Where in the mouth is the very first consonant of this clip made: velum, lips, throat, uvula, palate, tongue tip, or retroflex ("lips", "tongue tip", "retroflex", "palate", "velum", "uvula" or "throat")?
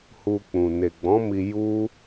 throat